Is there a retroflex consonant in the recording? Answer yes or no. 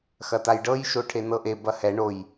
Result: yes